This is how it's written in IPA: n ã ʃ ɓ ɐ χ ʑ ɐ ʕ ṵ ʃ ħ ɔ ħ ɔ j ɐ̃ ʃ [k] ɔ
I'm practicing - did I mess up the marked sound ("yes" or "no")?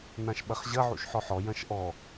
yes